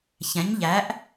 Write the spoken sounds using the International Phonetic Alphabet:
ç ɛ̃˩˥ ɲ ʎ æ˩˥ ʔ

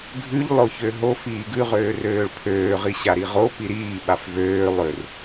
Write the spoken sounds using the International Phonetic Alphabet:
ɡʱ ʉ ʎ lˠ o ç ø ɦ o f iː ɡ ʉ ʁ øː r øː ɭ pʰ øː ʁ i ɕ a ɾ i ʁ o p i ɾ iː ɓ a f v øː lˠ ø r

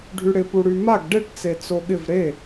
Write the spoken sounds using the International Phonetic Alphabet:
ɖʱ y ɽ ɪ p u ɽ y m a ɡ ɖ e ʈ t͡s e t͡s o ɠ ɪ v ɾ e

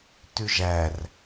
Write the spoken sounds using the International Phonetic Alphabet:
t ʉ ʒ æ r

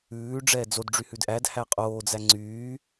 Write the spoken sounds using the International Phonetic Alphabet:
ʉː ɖ͡ʐ ɛː d͡z o d ɖ͡ʐ y h ʉ d ʔ æ d h æ qʼ oː d͡z æ ŋ͡ǀ yː

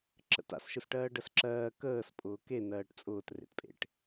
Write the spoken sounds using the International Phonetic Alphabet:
ǁ ə̰ t a̰ s ʃ ɯ s ʈ ɜː ɖ ɜ s ǁ ɜː k əː s pʼ ʊː k e n ɜː ʈ t͡sʼ ʊː t r ḛ t pʼ ḛ ʈ

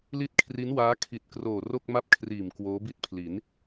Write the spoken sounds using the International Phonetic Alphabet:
l i˥˩ t̚ kʰ r i˦˥ n w aː˦˥ kʰ i˨˩ t̚ k r oː˨˩ r o˥˩ k̚ m a˥˩ p̚ kʰ r iː˨˩ m k w oː˦˥ b i˥˩ t̚ pʰ l i˩˦ n

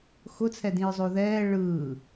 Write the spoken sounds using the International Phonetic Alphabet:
x ʊ t͡sʰ ɛ d ĩ ɹ zˤ oː ð ɛː ɭ ɯː

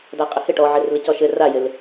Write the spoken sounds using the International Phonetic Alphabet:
d a qʼ ɪ h ɪ ʈ ɔ ʕ ɪ r l ɪ c ɔ ʃ ɘ r a j ɪ l

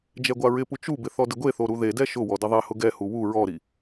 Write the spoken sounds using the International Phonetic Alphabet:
d͡ʒ ɛ ɡʷ a ɹ ɪ p u t͡ʃ u b ɪ θ ɔ d ɪ ɡʷ e θ o ɾ u ð e d ɛ ʃ ʊ w ɔ d ɪ ðˤ ɛ h ʊ ɡ ɛ h u w u ɹ ɔ ɾ i

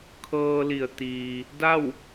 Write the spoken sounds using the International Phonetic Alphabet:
kʰ ɤː˧ l i˩ ə̯ t̪ iː˩ | d a˥˨ w

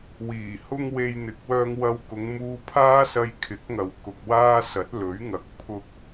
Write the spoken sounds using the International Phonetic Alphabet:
w iː˨˩ h ʊ˥ ŋ w e˧ j n̪ ɪ˨ k̚ w œː˧ ŋ w ɐ˧ w k ʊ˨˧ ŋ m uː˧ pʰ aː˥ s ɐ˧ j kʰ ɪ˨˥ k̚ ŋ ɐ˨ w k ʊ˨ k̚ w aː˥ s ɐ˨˥ t̚ l ɵ˨˥ ɥ ŋ ɐ˨˥ k̚ pʰ ʊ˧ k̚

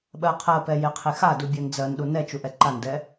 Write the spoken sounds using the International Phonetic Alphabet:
ɓ ɜ qʰ ɜ p ɛ j e qʰ e x a d u bʲ ɜ n d͡z ɜ n ɗ u n ɛ t͡ʃ u ʔ ɛ ǃ a n d ɛ

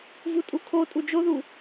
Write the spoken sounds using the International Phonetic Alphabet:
v u tʼ u kʰ o tʼ u d͡ʒ o ð u

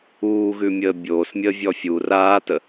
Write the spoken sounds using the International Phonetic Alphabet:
uː ɣ ʉ mʲ əː bʲ oː s mʲ əː vʲ ɔ fʲ u r aː t ə

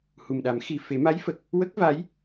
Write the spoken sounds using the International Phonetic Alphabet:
h u˨˩ m ɗ a˨˩˦ m x i˨˩ f e˨˩˦ m a˧˥ j f ə˨˩ k̚ | w ə˦˥ k̚ v a˧˥ j

